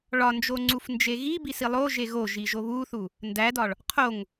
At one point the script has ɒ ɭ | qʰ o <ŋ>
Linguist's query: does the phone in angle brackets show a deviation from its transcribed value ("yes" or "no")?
no